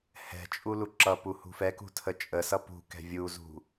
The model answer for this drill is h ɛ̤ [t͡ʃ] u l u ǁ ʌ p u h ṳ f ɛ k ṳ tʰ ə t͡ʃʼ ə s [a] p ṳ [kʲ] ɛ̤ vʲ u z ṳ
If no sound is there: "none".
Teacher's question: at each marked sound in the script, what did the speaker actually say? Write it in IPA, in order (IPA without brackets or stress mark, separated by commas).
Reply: t͡ʃʼ, ʌ, k